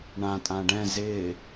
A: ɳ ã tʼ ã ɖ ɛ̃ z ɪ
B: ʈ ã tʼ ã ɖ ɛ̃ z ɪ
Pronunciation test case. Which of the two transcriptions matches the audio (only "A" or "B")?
A